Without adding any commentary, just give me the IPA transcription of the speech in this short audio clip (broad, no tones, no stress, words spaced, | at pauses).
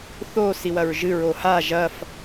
θo siwɐɹʒɨ ɹoha ʒɐf